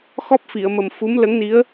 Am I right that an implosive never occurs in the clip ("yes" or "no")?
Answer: yes